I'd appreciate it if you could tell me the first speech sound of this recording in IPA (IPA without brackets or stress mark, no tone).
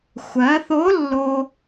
xʷ